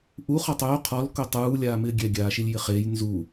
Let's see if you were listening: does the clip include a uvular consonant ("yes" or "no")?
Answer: yes